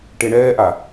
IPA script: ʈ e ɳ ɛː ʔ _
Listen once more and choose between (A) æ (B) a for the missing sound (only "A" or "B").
B